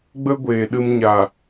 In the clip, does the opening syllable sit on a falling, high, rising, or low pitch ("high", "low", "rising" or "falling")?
high